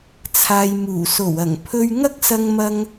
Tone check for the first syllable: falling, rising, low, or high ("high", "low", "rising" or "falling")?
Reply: low